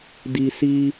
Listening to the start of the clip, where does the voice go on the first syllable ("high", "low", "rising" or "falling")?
high